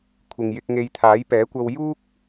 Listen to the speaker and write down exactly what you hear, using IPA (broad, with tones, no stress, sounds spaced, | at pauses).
kʷʰ ɪ˨ ŋ j ɪ˧ k̚ ŋ e˨˧ j t̪ʰ aː˨˥ j p ɛː˨˥ kʷ ɐ˧ w j uː˥ k̚